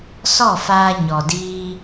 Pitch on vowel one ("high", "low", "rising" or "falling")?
falling